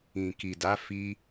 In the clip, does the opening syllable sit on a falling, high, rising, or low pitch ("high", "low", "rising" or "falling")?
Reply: low